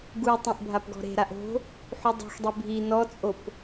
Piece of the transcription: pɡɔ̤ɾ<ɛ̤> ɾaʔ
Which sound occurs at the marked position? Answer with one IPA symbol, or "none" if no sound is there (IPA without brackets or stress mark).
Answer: e̤